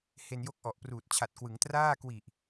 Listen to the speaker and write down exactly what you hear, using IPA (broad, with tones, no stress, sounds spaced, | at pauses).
h e˧ n j o˦˥ k̚ ʔ ɔ˨˩ ʔ p r uː˨˩ t̚ t͡ɕʰ a˨˩ t̚ k w ɯ˩˦ ŋ t r aː˥˩ k w i˨˩ ʔ